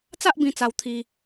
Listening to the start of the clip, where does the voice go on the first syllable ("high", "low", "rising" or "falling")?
high